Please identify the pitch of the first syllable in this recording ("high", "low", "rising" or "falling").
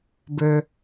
low